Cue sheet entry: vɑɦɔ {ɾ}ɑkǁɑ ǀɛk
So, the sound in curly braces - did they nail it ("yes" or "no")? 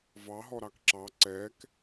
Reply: yes